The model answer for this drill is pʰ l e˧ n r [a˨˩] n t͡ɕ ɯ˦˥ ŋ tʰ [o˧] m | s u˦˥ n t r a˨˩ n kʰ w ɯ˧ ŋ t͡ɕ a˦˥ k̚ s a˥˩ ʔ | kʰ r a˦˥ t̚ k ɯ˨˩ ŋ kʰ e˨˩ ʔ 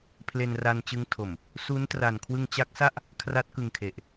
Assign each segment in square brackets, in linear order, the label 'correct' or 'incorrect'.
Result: incorrect, incorrect

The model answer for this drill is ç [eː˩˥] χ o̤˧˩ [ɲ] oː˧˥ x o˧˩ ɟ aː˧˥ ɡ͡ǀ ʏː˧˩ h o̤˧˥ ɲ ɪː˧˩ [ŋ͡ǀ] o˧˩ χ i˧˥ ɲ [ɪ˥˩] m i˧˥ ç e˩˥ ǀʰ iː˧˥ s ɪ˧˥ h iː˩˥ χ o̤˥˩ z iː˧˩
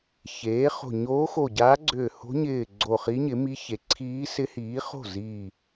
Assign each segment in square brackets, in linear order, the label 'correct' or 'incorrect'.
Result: correct, correct, incorrect, incorrect

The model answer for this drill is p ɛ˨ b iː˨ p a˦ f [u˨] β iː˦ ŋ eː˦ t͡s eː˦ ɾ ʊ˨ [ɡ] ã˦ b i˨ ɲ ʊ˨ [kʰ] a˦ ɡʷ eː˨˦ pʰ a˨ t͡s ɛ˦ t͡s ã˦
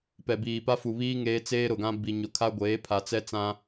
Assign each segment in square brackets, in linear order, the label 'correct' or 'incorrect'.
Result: correct, correct, correct

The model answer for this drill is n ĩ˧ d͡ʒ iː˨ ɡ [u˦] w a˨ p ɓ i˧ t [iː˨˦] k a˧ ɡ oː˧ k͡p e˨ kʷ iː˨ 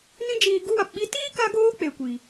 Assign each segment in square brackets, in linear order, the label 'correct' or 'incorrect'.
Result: correct, incorrect

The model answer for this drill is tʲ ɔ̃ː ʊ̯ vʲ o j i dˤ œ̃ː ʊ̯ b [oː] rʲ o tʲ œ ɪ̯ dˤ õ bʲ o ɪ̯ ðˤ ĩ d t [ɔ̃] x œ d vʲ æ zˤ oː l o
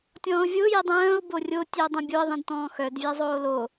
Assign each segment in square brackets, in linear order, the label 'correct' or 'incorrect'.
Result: incorrect, incorrect

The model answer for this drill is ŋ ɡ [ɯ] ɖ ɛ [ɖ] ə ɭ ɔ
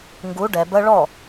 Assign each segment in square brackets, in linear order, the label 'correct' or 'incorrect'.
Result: incorrect, incorrect

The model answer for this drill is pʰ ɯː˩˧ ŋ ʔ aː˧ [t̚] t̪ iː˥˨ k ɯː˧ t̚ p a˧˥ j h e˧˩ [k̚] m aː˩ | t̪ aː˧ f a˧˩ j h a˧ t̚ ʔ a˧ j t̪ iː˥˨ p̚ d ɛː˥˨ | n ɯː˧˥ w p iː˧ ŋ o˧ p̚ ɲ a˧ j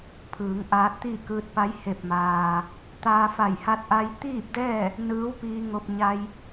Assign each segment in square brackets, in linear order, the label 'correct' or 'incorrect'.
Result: correct, incorrect

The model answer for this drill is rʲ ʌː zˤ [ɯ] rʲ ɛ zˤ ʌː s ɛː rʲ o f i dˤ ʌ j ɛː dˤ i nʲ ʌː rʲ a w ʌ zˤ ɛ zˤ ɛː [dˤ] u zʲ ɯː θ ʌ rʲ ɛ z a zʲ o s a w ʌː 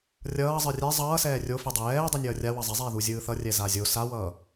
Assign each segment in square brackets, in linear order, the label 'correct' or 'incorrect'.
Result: correct, incorrect

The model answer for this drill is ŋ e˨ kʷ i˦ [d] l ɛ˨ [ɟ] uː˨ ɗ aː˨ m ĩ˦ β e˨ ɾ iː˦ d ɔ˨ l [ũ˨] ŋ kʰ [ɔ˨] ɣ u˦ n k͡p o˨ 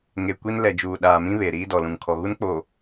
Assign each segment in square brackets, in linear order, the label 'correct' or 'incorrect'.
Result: incorrect, incorrect, correct, correct

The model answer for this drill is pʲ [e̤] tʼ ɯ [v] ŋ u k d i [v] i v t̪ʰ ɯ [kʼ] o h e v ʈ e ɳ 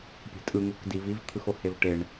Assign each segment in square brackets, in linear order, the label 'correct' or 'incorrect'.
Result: correct, incorrect, correct, incorrect

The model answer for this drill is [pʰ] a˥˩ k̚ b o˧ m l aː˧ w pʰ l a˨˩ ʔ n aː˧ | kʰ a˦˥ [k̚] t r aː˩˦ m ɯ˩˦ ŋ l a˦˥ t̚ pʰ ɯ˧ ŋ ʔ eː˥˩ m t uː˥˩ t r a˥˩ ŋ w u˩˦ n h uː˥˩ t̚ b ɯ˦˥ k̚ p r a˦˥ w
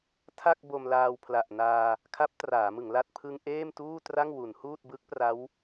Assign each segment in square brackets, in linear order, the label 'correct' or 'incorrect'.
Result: incorrect, incorrect

